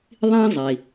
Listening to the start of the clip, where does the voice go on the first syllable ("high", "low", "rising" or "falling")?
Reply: high